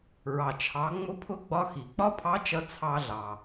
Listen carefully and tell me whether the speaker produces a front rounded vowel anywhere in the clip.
no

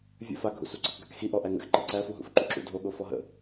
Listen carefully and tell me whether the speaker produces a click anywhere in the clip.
yes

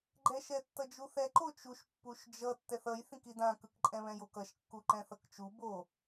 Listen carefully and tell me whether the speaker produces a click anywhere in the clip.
yes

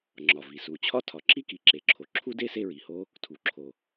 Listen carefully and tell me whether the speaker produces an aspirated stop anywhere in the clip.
yes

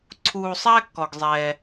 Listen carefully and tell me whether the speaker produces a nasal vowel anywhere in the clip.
no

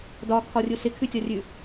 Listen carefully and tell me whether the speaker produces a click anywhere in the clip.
no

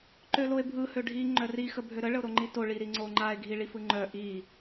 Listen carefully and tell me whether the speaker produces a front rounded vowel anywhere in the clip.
yes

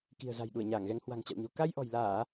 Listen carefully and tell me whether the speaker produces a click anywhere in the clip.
no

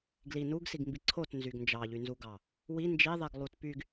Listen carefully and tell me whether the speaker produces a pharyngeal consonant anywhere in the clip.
no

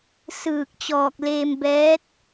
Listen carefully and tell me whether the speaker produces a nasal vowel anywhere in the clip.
no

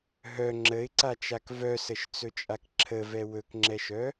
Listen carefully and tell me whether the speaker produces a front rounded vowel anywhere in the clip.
yes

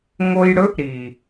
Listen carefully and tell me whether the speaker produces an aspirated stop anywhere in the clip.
no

